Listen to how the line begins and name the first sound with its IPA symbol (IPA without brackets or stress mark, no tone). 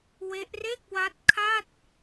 w